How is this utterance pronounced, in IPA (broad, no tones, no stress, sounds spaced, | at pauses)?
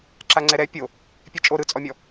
ǁ a ŋ͡ǀ ɛ ɾ ɛ pʲ o | pʲ e t͡ʃʼ o ɾ ɯ t͡sʼ ɔ mʲ ɔ